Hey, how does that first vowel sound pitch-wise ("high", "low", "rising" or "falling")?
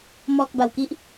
low